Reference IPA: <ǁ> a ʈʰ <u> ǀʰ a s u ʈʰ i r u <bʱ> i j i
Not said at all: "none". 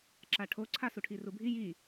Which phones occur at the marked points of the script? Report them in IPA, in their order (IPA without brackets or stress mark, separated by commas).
ǁ, o, bʱ